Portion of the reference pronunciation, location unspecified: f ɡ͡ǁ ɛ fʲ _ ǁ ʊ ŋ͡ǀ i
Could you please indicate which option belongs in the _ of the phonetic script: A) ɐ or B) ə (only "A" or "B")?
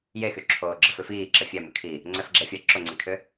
A